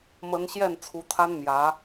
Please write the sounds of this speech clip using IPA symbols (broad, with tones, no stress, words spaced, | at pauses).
mə˧˥n ɕjɛ˥˩nt͡sʰu˧˥t̪ʰa˥n mjä˧˥